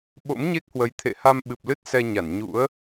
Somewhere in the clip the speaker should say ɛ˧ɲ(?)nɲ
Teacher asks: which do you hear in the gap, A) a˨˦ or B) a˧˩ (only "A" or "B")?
B